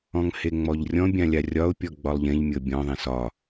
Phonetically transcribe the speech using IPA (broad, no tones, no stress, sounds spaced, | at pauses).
ɔ̃ ŋ h e ŋ͡m ɔ ʎ rʲ ɔ̃ bʲ ã lʲ a rʲ ɒ ʊ̯ pʲ ɔ ɡ͡b ɒ lˠ ʎ ẽ ʎ mʲ ɤ bʲ ɔ̃ ðˤ ẽ s ɒ